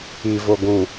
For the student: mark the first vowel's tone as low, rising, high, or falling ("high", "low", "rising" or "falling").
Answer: low